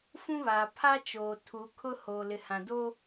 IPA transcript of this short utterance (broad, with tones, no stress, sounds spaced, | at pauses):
f ũ˦ β aː˨ pʰ a˦ t͡ʃ oː˨ tʰ u˨˦ kʰ ʊ˦ h oː˨ l ɪ˨ h ã˨ d o˦